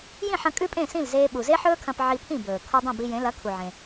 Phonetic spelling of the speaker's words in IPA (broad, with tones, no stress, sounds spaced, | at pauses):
j ĩ˥˩ ħ ɐ̃˧ kʼ ʉ˥ pʼ ẽ˥˩ s ĩ˥˩ l z eː˧ ɓ u˩ z e˥ ħ ɵː˥ kʰ ɐ̃˧ p ʕ i˧ pʰ ĩ˥˩ b ɵː˩ kʰ u˧ dˤ ẽ˥˩ b i˧ j ẽ˩˥ l ɐ˩˥ kʰ u˩ ʕ ẽ˩